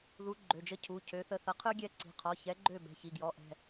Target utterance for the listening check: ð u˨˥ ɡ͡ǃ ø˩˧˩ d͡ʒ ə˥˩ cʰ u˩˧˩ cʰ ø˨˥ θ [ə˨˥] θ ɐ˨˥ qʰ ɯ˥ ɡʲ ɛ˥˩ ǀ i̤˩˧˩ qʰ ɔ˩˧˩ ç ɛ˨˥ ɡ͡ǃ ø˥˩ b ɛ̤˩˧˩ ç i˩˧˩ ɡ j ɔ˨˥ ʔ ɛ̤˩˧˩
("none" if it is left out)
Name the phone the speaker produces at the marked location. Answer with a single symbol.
ə˧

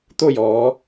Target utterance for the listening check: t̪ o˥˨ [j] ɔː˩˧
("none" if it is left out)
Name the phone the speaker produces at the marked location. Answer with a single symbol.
j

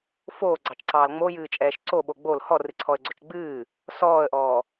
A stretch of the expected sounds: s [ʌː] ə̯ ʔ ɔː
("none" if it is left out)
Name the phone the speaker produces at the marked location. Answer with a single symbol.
ɔː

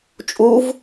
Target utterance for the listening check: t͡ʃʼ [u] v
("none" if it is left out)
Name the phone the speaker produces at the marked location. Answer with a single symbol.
u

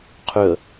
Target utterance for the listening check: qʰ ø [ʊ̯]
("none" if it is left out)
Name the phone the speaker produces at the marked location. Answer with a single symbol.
ə̯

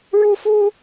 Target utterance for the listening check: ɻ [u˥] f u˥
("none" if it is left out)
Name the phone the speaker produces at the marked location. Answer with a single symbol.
u˥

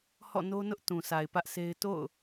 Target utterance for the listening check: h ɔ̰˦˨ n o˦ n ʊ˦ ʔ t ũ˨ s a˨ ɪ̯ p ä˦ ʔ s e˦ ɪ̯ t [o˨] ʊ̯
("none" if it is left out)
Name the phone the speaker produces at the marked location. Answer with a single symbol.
o̰˦˨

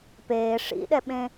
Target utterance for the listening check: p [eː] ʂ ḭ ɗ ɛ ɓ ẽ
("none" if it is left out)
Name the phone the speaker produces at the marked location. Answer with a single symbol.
eː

